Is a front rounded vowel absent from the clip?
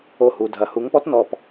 yes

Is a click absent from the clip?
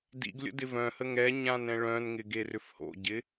yes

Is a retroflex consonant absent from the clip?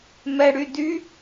no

